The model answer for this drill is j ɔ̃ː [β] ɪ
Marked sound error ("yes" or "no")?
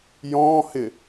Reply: yes